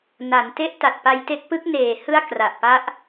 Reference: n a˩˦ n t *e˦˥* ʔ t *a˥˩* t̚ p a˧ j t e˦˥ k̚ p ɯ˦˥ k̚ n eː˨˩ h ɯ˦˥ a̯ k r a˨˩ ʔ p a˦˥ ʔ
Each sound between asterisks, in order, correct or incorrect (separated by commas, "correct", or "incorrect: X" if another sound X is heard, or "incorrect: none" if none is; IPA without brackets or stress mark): correct, incorrect: a˨˩